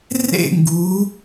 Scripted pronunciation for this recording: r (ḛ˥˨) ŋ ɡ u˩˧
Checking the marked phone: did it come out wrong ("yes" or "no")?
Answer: no